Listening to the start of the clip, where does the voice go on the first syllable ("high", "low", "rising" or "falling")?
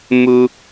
high